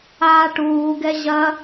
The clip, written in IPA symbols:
aːʈuːɡɛ ʑɐ

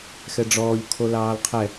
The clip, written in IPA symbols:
xɛɖ͡ʐɔːʎ kʰolɑːlqʰɛ

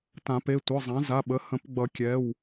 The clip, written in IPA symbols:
tã˨˩˦pe˩˧˩tʷɯ˩˧˩ zˤã˩˥ za˩˧˩ɓə˩˥ hə̃˨˩˦pɡ͡bʌ˨˩˦kʲɛ˩˧˩w

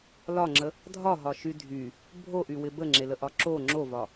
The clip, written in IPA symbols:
lɒŋ͡ǁə | dʱɒɦɒʃy dʱy | bʱoʔywɪ bəŋ͡ǁeləʔɒ ǁo ŋ͡ǁovɒ

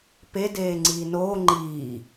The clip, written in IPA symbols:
pe deːŋ͡ǀiːnoː ŋ͡ǃiː

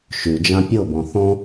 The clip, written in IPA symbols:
ʃʉd͡ʒã pʲɤbɔ̃ θɔ̃

